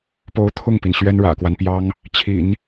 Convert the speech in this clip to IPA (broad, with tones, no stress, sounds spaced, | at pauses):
p o˧˥ ʊ̯ t̪ʰ ʊ˥˩ ŋ p i˩ n ɕ ɥ ɛ˥ n ɻ ä̰˨˩ k w a˦ n p j ɑ˥ ŋ | t͡ɕʰ ḭ˨˩˦ n